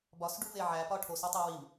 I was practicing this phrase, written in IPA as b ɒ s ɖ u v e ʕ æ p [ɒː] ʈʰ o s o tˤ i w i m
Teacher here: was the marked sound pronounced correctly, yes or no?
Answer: no